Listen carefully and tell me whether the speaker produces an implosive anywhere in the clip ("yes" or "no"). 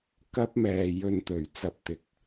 no